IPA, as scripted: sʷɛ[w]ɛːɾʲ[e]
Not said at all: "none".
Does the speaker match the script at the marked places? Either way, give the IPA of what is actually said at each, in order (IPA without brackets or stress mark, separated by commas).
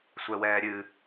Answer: w, ɨ